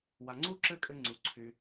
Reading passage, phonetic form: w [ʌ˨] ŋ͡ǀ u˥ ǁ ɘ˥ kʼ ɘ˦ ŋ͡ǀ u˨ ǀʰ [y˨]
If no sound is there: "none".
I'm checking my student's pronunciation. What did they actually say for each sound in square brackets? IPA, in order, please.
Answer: a˨, y˨

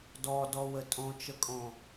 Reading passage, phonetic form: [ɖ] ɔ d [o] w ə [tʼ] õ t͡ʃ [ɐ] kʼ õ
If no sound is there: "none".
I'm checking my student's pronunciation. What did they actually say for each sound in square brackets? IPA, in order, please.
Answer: d, ɔ, tʼ, ə

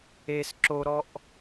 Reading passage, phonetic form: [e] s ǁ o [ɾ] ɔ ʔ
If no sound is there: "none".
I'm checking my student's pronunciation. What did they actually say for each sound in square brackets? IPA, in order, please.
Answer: e, ɾ

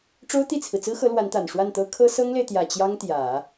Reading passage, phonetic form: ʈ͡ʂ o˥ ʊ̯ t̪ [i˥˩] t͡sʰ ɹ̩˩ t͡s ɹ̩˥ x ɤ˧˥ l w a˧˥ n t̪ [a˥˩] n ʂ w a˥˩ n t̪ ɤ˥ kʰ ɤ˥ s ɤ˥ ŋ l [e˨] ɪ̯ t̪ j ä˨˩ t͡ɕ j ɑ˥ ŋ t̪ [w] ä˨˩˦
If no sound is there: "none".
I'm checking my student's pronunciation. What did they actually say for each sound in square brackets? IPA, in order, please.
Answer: i˥˩, a˨˩, e˨, j

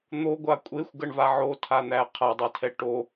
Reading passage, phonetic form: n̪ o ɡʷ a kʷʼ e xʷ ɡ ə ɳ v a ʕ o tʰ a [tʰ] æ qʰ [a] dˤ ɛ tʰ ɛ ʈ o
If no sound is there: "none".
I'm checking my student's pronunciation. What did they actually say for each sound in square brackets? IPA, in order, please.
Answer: n̪, a

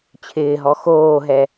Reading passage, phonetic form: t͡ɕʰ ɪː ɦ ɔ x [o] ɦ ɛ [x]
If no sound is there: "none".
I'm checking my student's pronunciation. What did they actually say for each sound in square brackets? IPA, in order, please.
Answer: oː, none

